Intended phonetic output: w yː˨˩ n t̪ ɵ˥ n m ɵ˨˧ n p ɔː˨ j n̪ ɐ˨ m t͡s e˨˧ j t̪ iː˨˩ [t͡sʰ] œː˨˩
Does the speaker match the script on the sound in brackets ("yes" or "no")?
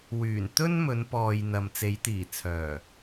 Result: yes